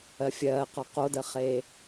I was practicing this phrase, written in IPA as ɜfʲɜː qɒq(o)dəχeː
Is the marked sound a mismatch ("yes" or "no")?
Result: no